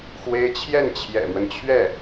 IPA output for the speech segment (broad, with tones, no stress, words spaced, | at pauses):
xwe˥ɪ̯ t͡ɕʰjɛ˥˩nt͡ɕʰjɛ̰˨˩mwə˦nt͡ɕʰɥɛ˥˩